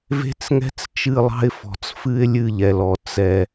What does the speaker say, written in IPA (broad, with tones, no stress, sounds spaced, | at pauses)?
v e̤˦ t͡s ŋ ɛ̤˦ t͡s t͡ʃ ɨ˦˨ lˠ ɑ̤˦ ɪ̯ f ɔ̤˨ t͡s f ɨ˦ ɪ̯ lʲ ɨ˦˨ ʎ ɛ˨ l ɔ˨ t͡s ɛ˦